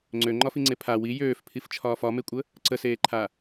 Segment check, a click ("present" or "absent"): present